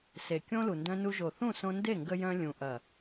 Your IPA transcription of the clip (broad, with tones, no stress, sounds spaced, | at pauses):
s e˨ kʲ õ˦ l u˨ n d œ̃˧ n u˧ ʒ o˨ θ ũ˦˨ s õ˧ n d e˦˨ ŋ ɡ ə˧ j œ̃˧ lʲ ũ˨ ʔ ɐ˨